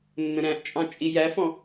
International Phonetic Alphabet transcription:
nː ə̃ ɾ æ̃ ʔ t͡ʃʼ ɑ̃ t͡ʃʼ i j æ f ɔ̃

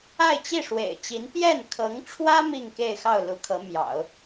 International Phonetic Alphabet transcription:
a˥˧ ɪ̯ t͡ɕ i˥˩ ʂ w ḛ˨˩ ɪ̯ t͡ɕ i˧˥ n p j ɛ˥˩ n kʰ ɤ˧˥ ŋ ʈ͡ʂʰ w ä˥ m i˥˧ ŋ k e˥˧ ɪ̯ x ɑ˥˩ ʊ̯ l u˧˥ kʰ ɤ˧˥ m j ɑ̰˨˩˦ ʊ̯

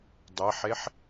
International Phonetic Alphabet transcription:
dˤ e ħ e ħ

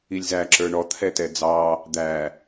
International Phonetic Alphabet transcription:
i lʲ z æ ǁ ə˞ ɳ ɔ t̪ʰ ɛ t ɛ d͡z ɑ | d̪ æ

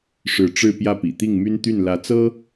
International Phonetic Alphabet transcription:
ʂ ɻ̩˧˥ ʈ͡ʂ ɻ̩˥˧ p j ä˥˩ p ḭ˨˩ t̪ i˥˩ ŋ m y˥ n t̪ y˥˩ n l ä˧˥ t͡s ɤ˥

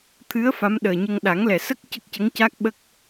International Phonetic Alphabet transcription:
t̪ʰ ɨ˧˥ ə̯ f a˧˥ m ɗ əː˨˩ ɲ ə˧ ŋ ɗ a˨˩˦ ŋ l ɛ˨˩ s ə˦˥ k̚ c ə˦˥ k̚ c ə˧˥ ŋ c a˦˥ k̚ ɓ ə˦˥ k̚

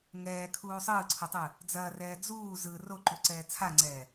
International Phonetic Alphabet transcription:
ŋ ɛː kʰ uː sˤ ɯː ǀʰ o tˤ ɯ | d͡z ɐː r ɛː d͡z uː z ɯ r o ǃ u ǀ ɛː t͡sʰ a ŋ͡ǀ ɛː

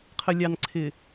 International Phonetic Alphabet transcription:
qʰ ə˨ lʲ ɑ˨ n ǀʰ ɪ˨

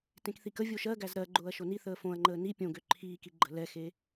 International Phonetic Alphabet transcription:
t ẽ k θ i k ə vʲ o ʃ ɜ ɡ æ z ɾ ɜ ɡ͡ǃ ʊː ɐ̯ ʃ o n i θ əː f õ ɐ̯ ŋ͡ǃ əː n i pʲ õ ɡ ø ǃʰ iː k i ɡ͡ǃ ə̤ l ɛ x e

